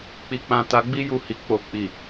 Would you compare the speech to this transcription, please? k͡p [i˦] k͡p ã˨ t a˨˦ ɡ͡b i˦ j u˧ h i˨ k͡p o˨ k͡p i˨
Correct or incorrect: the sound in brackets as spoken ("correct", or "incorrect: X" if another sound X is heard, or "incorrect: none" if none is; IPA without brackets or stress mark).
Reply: incorrect: i˨